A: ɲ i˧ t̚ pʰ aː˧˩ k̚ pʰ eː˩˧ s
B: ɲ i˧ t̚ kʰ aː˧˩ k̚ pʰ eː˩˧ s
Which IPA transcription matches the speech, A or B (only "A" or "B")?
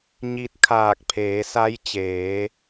B